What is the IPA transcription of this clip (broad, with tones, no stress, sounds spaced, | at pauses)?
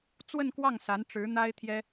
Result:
t͡s w ə˥˧ n k w ɑ˥˩ ŋ s a˧˥ n ʈ͡ʂ ɻ̩˧˥ n̪ a˥ ɪ̯ t̪ʰ j ɛ˥